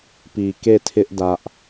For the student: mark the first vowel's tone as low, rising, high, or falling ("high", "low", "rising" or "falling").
low